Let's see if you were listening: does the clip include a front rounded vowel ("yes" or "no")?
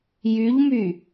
yes